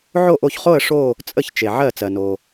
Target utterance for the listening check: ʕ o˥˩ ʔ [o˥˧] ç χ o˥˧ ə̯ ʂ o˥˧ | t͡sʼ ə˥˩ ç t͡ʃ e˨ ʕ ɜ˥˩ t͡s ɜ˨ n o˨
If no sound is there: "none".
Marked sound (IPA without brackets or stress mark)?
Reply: o˥˩